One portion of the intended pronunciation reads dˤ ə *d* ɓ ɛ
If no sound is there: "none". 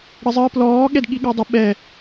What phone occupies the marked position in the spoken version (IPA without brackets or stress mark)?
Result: none